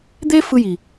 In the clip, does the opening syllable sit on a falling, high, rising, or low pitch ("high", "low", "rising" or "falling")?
high